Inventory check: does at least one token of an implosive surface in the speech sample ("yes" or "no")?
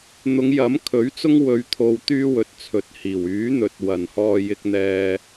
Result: no